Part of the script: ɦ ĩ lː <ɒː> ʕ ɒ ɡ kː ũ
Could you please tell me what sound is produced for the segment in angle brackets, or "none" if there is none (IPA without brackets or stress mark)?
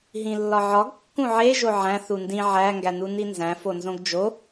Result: ɒ